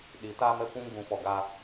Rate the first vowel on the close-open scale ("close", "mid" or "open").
close